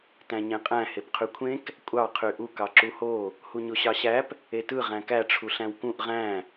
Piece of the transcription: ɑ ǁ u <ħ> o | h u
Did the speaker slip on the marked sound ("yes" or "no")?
yes